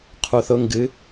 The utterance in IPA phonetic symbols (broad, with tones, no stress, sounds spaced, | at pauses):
qʰ u˩ θ ʊ˩˧ ŋ ɡ ɨ˩˧